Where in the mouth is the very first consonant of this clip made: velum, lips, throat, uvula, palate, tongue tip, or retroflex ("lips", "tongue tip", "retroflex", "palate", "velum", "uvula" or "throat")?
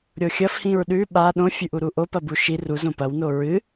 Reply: tongue tip